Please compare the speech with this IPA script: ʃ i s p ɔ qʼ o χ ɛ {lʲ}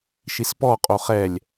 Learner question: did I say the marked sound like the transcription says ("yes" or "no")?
yes